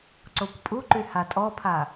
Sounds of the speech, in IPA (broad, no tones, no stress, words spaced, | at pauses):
ǀokʷpʼuǃy hatʼɔpʰa